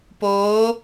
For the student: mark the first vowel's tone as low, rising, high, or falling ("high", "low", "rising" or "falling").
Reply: rising